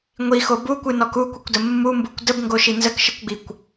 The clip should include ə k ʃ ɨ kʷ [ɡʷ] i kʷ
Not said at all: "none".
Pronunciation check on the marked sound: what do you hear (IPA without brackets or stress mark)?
ɡ͡b